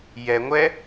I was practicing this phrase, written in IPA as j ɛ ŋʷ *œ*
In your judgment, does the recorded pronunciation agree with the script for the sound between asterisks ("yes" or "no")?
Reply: no